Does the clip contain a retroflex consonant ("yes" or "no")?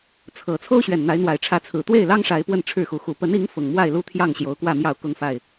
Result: yes